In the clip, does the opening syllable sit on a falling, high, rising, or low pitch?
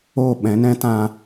falling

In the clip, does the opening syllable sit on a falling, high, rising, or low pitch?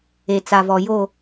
low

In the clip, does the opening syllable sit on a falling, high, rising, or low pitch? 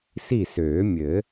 falling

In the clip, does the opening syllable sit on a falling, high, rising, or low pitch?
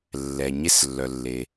low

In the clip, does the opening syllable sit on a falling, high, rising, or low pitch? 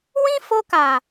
high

